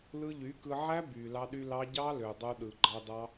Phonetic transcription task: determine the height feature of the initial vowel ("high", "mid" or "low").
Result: high